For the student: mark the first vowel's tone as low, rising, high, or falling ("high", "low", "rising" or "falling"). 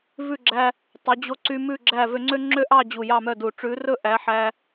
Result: falling